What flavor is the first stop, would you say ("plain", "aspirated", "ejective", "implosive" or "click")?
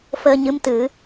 plain